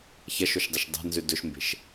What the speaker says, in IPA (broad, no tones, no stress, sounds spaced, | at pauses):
ç ɐ ʃ o ʃ dˤ a ʃ dˤ a̤ n z ʉ d ɵ ʃ m b e̤ ʃ